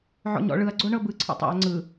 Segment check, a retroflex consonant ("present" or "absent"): present